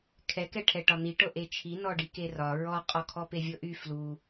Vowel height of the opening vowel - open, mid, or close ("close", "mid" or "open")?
mid